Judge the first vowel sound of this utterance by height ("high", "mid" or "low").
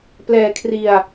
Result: mid